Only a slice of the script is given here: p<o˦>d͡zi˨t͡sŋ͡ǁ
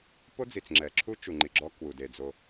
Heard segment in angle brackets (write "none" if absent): o˦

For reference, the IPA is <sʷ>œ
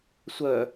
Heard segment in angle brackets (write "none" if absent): sʷ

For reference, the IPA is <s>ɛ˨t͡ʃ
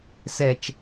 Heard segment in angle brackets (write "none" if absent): s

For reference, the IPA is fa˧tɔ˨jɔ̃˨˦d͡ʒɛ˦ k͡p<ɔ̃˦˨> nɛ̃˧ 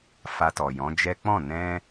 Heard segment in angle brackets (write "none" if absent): ɔ̃˦˨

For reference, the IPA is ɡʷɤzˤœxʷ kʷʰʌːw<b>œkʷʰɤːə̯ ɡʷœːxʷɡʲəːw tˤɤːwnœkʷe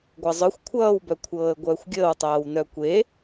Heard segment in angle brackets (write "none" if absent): b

